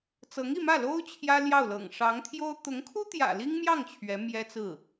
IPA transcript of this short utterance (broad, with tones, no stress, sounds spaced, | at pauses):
t͡s ɤ˧˥ ŋ i˥˧ m ä˥˩ l o˥ ʊ̯ t͡ɕʰ j ä˥ l j ɑ˥˩ ʊ̯ l ɤ̰˨˩ ŋ ʂ ɑ˧˥ ŋ t̪ʰ j o˥ ʊ̯ t̪ ʊ˧˥ ŋ kʰ u˥ t̪ j ä̰˨˩ l i˥ ŋ m j ɑ˥˩ ŋ t͡ɕʰ ɥ ɛ˧˥ m j ɛ˥ t͡s ɹ̩˥˩